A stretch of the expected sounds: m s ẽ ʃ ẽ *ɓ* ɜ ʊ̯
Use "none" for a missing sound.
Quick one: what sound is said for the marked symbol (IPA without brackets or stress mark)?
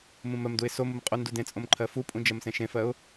f